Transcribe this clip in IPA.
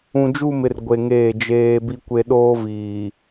ũ˨ d͡ʒ u˦˨ m ɪ˨ r ɡʷ e˨ ŋ eː˦˨ d͡ʒ eː˦ b i˦ kʷ e˦ ɗ oː˦ v iː˨

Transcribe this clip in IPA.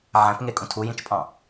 ʕ æ̃ p ŋ e kʼ ũ tʰ u j ĩ t͡ʃ pʼ ɑ̃

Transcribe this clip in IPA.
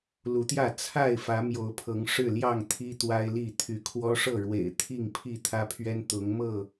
l u˨˦ t̪ j ä˥˨ t͡sʰ a˥˨ ɪ̯ f ä˨˦ m j o˨˦ ʊ̯ pʰ ɤ˨˦ ŋ ʂ ɻ̩˥˨ l j ɑ˥˨ ŋ t̪ʰ i˦ t̪ w a˦ ɪ̯ l i˥˨ t̪ʰ y˨˦ kʰ w ɔ˦ ʂ ɤ˥˨ ɻ w ḛ˨˩ ɪ̯ t̪ʰ i˥˨ ŋ pʰ i˥˨ t̪ʰ ä˦ pʰ ɥ ɛ˦ n t̪ ʊ˨˦ ŋ m ɤ˥˨

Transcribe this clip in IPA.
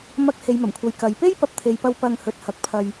m ɐ˧ k̚ h e˨˧ j m ɐ˨˩ m kʷʰ ɐ˨ j k ɐ˨˧ j p e˥ j p ɐ˨˥ p̚ t̪ʰ e˨ j p ɐ˧ w p ɐ˧ ŋ h ɵ˨ t̚ h ɐ˨˥ k̚ pʰ ɐ˧ j

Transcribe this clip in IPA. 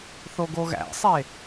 θ o ɡ o ɣ æ̰ sˤ e

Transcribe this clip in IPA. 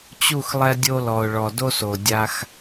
t͡ɕ u˦˨ x lˠ ɛ˧ dʲ o˧ l ɔ˨ ʊ̯ ɭ ɔ˨ d o˧ s o˨ dʲ a˧ x

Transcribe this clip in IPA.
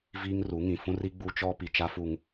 v iː˦ ŋ r u˨˦ ŋ ĩ˨ f ũ˦ r i˦ ɡ͡b u˦ t͡ʃ ɔ˦ p i˨ t͡ʃ a˦ f u˨ ŋ

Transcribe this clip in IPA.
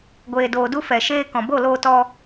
ɡʷ eː˨ d oː˨ d u˧ f ɛ˨ ʃ eː˧ k ɔ̃˨ b o˦˨ l oː˧ t ɔ˧

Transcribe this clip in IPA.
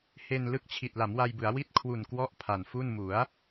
h e˧ n l ɯ˦˥ k̚ t͡ɕʰ i˨˩ t̚ l a˩˦ m w a˧ j b ɯ˩˦ a̯ w i˥˩ t̚ kʰ w u˨˩ n k w ɔ˦˥ ʔ pʰ a˨˩ n f u˥˩ n m u˩˦ a̯

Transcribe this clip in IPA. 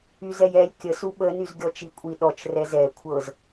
y z ɛ j ɛ lʲ kʲ ə s u ɓ ə n y z ɡʲ ɔ t͡ʃ i kʷʼ i ɗ ɔ t͡ʃ r ɛ z ɛ kʷʰ ɤ z

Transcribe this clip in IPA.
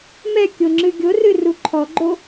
m ɛ kʲ o ŋ͡ǁ ɨ ɡʲ o r ɨ r u ǃʰ ɔ ɡ͡ǃ o

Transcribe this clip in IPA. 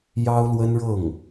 j ɑ˥ ʊ̯ l w ə˥ n ɻ ɤ˥˩ ŋ

